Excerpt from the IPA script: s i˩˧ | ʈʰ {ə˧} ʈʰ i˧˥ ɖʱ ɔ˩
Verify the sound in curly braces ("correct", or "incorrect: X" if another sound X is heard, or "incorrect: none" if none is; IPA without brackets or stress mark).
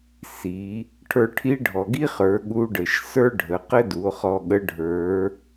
incorrect: ə˞˧